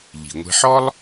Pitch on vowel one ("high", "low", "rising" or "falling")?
low